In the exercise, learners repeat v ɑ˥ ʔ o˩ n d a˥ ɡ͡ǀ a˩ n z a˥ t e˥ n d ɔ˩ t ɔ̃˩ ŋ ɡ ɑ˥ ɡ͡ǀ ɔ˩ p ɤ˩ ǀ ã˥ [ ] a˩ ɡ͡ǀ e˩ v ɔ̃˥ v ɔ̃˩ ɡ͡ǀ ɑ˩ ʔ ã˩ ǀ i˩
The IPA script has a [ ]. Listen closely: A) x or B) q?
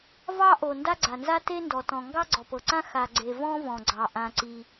A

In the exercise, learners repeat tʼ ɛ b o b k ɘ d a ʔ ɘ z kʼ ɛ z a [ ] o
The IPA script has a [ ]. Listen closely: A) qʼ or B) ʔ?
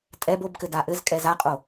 A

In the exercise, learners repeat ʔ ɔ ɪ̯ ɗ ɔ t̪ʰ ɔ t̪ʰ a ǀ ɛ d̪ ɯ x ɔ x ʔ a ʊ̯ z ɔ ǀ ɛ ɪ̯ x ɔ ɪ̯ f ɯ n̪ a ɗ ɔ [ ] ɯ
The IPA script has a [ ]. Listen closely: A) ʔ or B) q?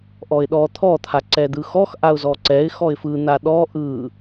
A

